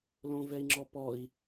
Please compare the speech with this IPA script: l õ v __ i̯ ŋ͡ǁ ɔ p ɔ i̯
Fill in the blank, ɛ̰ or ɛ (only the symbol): ɛ